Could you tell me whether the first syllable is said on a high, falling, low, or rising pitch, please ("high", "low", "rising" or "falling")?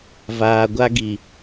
low